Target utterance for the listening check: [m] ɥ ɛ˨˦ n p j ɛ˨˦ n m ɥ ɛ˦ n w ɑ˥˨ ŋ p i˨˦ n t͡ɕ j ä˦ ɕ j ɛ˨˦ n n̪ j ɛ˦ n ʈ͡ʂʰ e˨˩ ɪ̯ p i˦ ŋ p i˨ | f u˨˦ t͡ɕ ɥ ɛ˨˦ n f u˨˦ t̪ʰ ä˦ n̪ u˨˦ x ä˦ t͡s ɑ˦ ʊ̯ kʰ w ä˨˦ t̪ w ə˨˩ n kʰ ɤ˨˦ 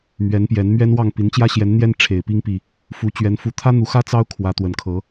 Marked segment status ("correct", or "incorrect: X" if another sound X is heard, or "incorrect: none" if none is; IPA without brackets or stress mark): correct